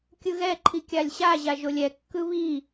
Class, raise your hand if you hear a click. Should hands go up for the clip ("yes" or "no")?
yes